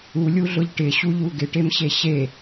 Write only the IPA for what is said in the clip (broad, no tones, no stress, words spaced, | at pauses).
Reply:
ulʲuɮʊʎ ʈɪɕuʎu ɡɪʈemɕe ɕe